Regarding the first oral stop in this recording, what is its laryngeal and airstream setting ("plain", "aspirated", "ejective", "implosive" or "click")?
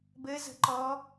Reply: plain